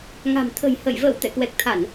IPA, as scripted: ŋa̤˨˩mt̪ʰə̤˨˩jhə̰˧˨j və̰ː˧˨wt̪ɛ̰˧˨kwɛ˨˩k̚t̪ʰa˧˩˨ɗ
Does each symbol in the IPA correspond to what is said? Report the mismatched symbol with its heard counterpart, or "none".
ɗ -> n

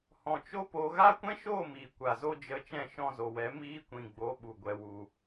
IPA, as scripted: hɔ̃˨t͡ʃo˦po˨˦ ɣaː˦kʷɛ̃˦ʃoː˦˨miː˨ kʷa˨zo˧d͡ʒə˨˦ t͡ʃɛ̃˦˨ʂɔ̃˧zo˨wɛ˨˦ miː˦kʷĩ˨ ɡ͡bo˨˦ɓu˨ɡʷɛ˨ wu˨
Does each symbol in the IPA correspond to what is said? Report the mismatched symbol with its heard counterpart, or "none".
ʂ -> ʃ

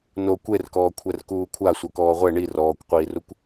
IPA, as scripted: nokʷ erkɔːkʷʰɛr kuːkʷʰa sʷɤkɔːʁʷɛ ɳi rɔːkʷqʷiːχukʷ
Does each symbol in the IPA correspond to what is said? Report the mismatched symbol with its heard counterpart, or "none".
χ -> r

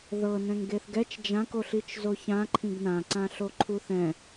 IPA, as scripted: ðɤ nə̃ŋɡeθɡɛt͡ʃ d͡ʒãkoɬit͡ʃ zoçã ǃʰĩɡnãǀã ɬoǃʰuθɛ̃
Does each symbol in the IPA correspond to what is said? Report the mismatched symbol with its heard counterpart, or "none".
ə̃ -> ɛ̃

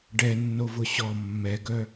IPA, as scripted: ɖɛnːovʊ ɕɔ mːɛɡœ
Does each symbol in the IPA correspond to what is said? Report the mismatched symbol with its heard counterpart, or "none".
none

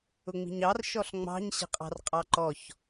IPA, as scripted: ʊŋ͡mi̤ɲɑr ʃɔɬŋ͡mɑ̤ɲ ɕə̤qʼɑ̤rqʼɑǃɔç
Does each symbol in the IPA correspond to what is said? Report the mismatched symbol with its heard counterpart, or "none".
none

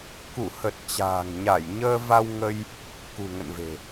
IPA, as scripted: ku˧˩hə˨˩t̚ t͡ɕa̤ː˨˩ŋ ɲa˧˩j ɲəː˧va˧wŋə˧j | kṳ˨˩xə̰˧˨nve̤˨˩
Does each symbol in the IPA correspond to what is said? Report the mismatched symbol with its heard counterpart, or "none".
x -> ŋ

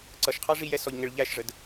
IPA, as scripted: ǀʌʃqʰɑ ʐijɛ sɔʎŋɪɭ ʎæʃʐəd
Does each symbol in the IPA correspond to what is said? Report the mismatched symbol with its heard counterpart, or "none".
none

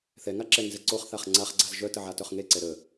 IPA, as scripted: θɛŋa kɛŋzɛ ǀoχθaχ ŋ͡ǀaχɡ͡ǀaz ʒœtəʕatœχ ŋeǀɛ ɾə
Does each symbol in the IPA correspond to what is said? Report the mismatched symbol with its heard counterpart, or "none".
k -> ǁ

